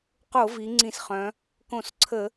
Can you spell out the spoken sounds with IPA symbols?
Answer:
q o˧˩˧ v i˩˧ ŋ͡ǀ ĩ˧˩˧ s χ œ̃˩˧ | k õ˧˩˧ s ǀʰ ə˧˩˧

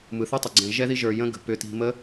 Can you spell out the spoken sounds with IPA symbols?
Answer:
m ɯ˨ θ ɯ˦ tˤ ʏ˨ ɡ͡ǀ ɛ̃˨ ʒ ɛ˦ ð i˦ ʒ ə˞˧ j ə̃˦ ɡ ə̤˨ p ʏ˧ t i̤˧ m ə˦

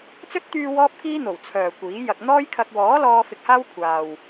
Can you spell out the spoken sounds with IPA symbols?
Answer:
t͡s ɵ˥ t̚ t̪ yː˧ w ɔː˥ p̚ k iː˥ n̪ o˨˩ w t͡sʰ œː˨ kʷ iː˨˥ j ɐ˧ k̚ n̪ ɔː˥ j kʰ ɐ˧ k̚ w ɔː˨˥ l ɔː˧ f ɪ˧ k̚ h aː˥ w kʷʰ aː˨ w

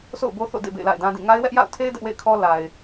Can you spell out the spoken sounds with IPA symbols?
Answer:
s o̰˦˨ ʊ̯ b o˦ θ o̰˦˨ d ḛ˦˨ b ḛ˦˨ ɪ̯ l a̰˦˨ ɪ̯ d ã˦ d ĩ˦˨ ŋ a˦ ɪ̯ w ɛ˦ ʔ j a̰˦˨ ʊ̯ tʰ e˦ ɪ̯ d ɛ˦ ʔ w ḛ˦˨ ɪ̯ kʰ ɔ˦ l a˨ ɪ̯

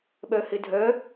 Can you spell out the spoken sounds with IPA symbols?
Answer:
ɓ œ h ɪ dʱ œ

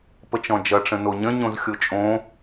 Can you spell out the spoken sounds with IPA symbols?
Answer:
p ə t͡ʃ ɔ̃ d͡ʒ ʌ ʈ͡ʂ ə̃ n o ɲ ə̃ ɲ õ z xʲ o t͡ʃʼ õ

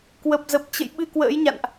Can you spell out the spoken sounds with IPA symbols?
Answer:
k w ə˨˩ p̚ z ə˨˩ p̚ t͡ɕ ə̰˧˨ j ɓ ɨ˧ k w ə̰ː˧˥ j ɲ a̰˧˨ n ʔ

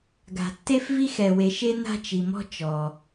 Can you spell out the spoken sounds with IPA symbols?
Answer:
ɡ a̤˨ tː e˦ f v i˦ x ɛ˨ w e˨ ʃ e˦ n a̤˦ t͡ʃ i˨ m ɔ̤˦ t͡ʃ ɔ˨

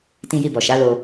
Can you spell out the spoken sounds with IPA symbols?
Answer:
t ĩ˧ j i˧ b ɔ˨ ʃ a˨˦ l o˧

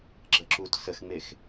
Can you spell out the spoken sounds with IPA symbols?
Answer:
ɡ͡ǁ ə ǁ u t s ə x ŋ͡m e x

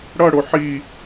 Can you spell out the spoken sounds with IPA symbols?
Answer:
ɽ ʌ ɽ o ħ i

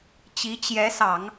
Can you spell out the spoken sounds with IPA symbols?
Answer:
t͡ɕ i˧˥ t͡ɕ j ɛ˧˥ s ɑ˨˩˦ ŋ

